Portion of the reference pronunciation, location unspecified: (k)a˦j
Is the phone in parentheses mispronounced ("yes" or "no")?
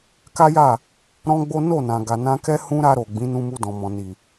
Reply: no